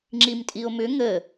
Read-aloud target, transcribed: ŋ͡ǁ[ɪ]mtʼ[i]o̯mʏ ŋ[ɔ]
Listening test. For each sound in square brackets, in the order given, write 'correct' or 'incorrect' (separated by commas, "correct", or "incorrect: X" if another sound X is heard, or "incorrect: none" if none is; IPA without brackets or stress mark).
incorrect: i, correct, incorrect: ə